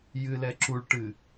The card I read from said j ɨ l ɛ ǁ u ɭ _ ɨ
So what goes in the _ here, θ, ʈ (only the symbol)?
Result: ʈ